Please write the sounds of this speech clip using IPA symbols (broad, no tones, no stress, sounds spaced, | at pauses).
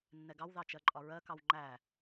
nː ɛ ɡ ɑ w ð ɑ t͡ʃ ɜ ǃʼ ɒ ɹ ɜ k ɑ w ŋ͡ǃ æ